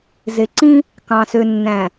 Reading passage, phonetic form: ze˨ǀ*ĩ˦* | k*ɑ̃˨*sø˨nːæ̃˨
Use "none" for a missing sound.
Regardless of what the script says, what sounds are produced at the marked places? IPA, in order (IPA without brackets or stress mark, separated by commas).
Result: ĩ˦, ɑ̃˨